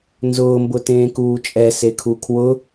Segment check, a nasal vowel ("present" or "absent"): present